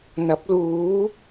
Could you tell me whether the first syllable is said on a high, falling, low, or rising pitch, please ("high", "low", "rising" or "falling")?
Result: rising